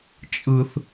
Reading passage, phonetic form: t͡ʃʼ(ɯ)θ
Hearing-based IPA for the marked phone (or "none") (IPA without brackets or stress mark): ɯ